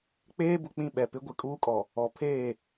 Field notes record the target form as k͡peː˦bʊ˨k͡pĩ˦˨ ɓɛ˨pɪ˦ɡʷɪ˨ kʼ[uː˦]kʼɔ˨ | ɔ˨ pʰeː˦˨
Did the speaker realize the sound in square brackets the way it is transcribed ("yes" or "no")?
yes